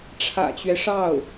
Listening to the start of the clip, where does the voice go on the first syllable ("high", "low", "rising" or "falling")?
low